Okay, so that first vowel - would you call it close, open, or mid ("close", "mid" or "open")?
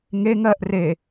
mid